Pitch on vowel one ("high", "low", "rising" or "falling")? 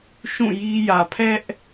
falling